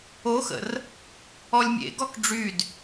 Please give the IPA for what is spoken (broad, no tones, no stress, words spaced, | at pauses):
oxə̰r | ɔlʲmʲḛɡɔk ɖ͡ʐyd